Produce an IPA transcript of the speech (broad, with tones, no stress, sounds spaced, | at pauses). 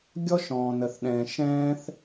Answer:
ɡʲ ɔ˥ ʃ ɔ̃ː˩ n ə˩ θ ɗ ɛ̃ː˩ ʃ ɛ̃ː˥ θ